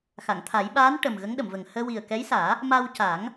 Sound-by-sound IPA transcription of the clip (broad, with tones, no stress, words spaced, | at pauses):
xa˨˩˨ŋt̪ʰa˨˩˦j ɓaː˧˥n ʈə˨˩m ɣə˧˥ŋɗə˨˩˨mvə˨˩ŋ həː˧wi˨˩ə̯kɛ˧˥jsaː˨˩˦ | ma˧w ca˨˩˦ŋ